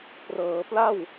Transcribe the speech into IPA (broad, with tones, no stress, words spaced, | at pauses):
prɤː˩˦pla˥˩w